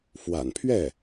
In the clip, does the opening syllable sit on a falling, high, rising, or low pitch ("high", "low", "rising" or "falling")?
low